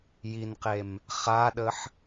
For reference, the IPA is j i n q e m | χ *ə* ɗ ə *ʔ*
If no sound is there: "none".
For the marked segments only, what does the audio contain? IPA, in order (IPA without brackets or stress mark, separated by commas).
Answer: a, ħ